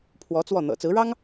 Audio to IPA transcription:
pʰ w ɔ˧˥ t͡s w ɔ˥˩ n̪ ɤ̰˨˩ t͡s ɹ̩˧˥ ɻ ɑ˥ ŋ

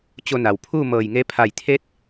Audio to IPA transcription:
t͡ɕ o˧ n a˩ w pʰ uː˥˨ m ɤː˧˩ j ŋ e˧˥ pʰ a˧˩ j t̪ʰ e˧˥ t̚

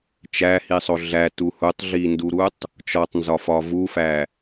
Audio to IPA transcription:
t͡ʃ æ h i sˤ o ɮ æ t u h u tˤ ɮ i n d u ɾ u tˤ | t͡ʃ ɒ tˤ n z ɒ f ɒ v u f æ

